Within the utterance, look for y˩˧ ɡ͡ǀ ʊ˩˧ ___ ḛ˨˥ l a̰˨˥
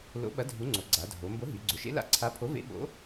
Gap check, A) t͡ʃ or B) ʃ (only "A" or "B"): B